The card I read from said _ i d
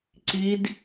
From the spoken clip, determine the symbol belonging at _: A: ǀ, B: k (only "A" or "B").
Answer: A